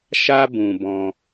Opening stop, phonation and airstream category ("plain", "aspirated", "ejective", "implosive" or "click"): plain